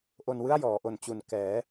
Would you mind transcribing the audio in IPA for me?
ʔ o˧ n w ɯ˥˩ a̯ j ɔː˩˦ ʔ o˨˩ n t͡ɕ u˨˩ n k ɛː˩˦

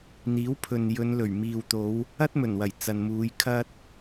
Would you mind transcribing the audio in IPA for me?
n̪ iː˨˥ w pʰ ɵ˨ n j ɵ˨˧ n l ɵ˨˩ ɥ m iː˨ w t̪ o˨˧ w | ɐ˥ t̚ m ɵ˨˩ n w ɐ˨˩ j t͡s ɐ˨ n m uː˨˧ j kʰ ɐ˧ t̚

